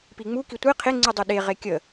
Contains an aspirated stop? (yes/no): yes